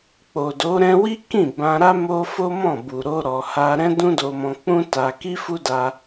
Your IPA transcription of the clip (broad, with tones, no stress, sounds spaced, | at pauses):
k͡p o˨ d o˨˦ ɾ ɛ̃˧ w i˦ k ĩ˦˨ b ã˧ ɾ a˦ m o˦ f o˦ m ɔ̃˦˨ b u˨ ɾ o˧ ɾ ɔ˧ h a˦ ɾ ɛ̃˦ d ũ˦ d o˧ m ɔ̃˧ k͡p ũ˦ t a˧ k i˦ f u˦ d a˦